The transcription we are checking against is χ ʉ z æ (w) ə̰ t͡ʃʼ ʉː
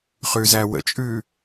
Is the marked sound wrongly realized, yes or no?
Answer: no